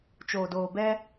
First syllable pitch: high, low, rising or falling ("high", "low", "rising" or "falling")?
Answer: low